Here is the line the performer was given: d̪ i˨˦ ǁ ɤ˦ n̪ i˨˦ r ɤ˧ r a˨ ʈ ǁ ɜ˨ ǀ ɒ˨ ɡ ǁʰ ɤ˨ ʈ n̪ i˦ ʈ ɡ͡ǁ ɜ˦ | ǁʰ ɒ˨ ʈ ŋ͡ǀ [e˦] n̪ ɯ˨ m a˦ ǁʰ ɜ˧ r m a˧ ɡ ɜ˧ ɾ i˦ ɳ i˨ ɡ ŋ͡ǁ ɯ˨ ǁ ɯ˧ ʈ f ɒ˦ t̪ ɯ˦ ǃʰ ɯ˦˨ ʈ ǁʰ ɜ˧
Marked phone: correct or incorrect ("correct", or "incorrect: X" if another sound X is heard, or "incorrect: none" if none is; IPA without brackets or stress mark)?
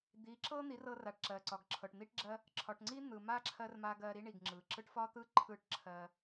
incorrect: i˦